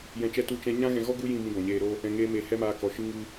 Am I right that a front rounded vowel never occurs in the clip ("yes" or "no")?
yes